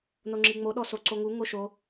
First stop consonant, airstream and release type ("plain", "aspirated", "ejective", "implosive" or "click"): click